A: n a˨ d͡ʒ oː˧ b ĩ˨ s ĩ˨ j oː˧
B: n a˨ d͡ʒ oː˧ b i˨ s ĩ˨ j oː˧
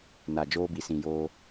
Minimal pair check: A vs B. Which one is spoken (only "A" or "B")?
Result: B